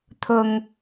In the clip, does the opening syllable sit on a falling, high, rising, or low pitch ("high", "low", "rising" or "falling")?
low